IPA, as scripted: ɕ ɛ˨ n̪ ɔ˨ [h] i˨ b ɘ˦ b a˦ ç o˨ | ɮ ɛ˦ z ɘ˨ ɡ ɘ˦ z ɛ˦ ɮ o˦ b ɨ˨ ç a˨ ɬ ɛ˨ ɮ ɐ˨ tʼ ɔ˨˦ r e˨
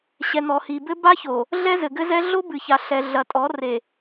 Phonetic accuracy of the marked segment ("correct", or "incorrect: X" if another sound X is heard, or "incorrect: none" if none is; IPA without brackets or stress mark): correct